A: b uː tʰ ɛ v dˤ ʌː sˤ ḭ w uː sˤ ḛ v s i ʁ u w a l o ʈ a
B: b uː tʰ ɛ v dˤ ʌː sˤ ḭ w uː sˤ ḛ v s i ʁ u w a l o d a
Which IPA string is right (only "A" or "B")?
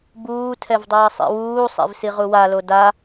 B